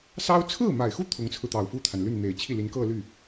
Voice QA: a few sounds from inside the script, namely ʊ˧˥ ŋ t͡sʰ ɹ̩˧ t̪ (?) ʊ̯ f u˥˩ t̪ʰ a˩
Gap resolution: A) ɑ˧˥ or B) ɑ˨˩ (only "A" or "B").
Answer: B